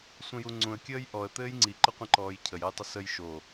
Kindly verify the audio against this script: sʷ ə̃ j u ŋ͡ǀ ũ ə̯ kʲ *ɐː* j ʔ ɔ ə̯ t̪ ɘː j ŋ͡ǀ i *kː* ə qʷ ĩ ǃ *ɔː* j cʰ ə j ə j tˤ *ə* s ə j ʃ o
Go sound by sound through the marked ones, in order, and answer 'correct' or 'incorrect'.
incorrect: əː, incorrect: ǃ, correct, correct

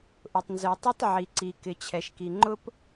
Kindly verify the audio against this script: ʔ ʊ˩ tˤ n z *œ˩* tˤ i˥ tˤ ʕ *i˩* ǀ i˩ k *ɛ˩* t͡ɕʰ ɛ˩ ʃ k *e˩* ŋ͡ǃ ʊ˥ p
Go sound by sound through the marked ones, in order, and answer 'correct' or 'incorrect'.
correct, correct, incorrect: ɪ˩, incorrect: i˩

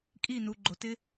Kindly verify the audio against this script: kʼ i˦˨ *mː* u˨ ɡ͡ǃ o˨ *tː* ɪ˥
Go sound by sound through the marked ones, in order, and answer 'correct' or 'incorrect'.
incorrect: n, incorrect: t

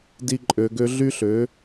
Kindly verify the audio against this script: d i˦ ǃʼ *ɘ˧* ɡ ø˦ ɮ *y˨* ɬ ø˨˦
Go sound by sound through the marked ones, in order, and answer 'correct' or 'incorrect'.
incorrect: ø˧, incorrect: y˦

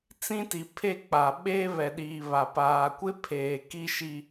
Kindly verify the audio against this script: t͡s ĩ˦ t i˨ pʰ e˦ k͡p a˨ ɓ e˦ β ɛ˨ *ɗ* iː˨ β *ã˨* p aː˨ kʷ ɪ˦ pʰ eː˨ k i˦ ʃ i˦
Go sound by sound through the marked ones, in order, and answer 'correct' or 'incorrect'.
correct, incorrect: a˨

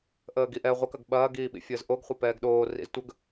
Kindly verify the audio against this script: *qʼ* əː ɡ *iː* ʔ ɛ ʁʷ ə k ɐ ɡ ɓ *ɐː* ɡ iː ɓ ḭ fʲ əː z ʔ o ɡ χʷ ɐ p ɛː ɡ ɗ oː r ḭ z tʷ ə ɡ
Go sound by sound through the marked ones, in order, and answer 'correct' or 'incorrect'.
incorrect: ʔ, incorrect: i, correct

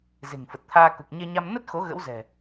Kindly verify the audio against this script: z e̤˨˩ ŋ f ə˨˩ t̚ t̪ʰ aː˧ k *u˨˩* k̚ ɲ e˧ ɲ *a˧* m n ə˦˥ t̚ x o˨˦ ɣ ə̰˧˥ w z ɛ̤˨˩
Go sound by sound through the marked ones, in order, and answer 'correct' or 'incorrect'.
correct, correct

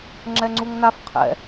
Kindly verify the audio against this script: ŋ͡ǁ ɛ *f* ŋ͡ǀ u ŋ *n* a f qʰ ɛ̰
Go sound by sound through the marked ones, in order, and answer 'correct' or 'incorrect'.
incorrect: none, correct

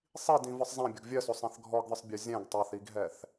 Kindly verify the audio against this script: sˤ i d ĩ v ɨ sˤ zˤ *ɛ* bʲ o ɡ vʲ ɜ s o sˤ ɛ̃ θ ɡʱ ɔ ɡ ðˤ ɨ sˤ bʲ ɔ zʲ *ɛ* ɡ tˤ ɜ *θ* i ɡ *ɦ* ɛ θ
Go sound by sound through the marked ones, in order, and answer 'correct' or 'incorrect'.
incorrect: ɛ̃, incorrect: ɛ̃, correct, correct

